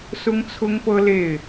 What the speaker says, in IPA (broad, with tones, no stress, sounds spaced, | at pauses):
s ʊ˥ ŋ t͡sʰ ʊ˥ ŋ p ɤ˥ l e˥˩ ɪ̯